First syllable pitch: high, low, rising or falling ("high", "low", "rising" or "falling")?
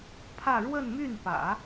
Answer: falling